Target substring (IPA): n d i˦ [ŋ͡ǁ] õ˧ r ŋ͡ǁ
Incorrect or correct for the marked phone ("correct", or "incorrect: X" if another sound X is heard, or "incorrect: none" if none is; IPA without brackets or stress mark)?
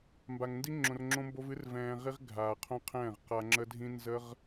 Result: correct